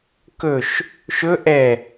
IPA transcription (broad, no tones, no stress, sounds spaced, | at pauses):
k ɵ ʃ | ʃ ɵ ʔ ɛ